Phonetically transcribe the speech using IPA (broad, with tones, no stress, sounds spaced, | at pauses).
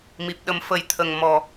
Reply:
m i˨˩ p̚ ɗ ə˨˩˦ m f ə˨˩˦ j t̪ʰ ə˨˩ ŋ m ɔ˨˩